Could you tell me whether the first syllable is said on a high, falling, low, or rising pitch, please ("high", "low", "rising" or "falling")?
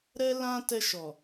high